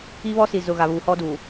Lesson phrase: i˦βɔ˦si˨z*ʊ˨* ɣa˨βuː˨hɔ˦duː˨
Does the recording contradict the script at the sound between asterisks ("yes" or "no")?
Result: no